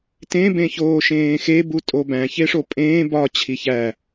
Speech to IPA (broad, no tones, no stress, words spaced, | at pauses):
tẽ bẽçoːʃẽːxe butʼobæ̃ çeʂopʼẽː bɒ t͡ɕʰiçæ